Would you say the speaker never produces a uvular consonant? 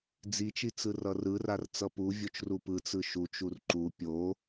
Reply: yes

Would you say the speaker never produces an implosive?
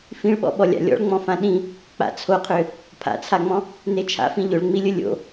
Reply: no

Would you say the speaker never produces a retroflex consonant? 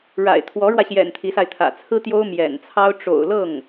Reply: no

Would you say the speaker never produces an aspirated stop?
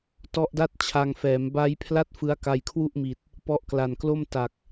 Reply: no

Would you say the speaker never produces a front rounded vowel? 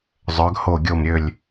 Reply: no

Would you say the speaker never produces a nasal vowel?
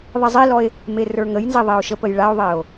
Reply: yes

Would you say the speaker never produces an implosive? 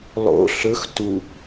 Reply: yes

